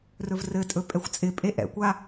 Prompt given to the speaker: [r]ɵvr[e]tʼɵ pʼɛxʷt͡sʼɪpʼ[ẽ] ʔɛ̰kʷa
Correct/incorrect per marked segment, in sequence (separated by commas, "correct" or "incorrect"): correct, incorrect, incorrect